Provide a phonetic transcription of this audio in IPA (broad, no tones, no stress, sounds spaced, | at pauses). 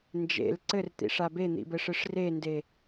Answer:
n d͡ʒ ḛ l ǀ ɘ r t̪ ḭ ʂ a b e n̪ ḭ b ɘ ʂ ɨ ʂ r e n d e